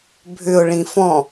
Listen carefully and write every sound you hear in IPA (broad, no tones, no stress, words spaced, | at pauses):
bʱʏʊ̯ ɭĩfɔ̃